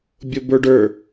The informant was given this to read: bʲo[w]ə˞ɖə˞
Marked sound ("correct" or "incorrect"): incorrect